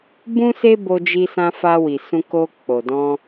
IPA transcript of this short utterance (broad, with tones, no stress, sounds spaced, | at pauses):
b ũ˦ s e˦ b o˧ d͡ʒ i˧ s ã˧ f a˧ w i˨ s ũ˧ k o˧ k͡p o˨ d ɔ̃˧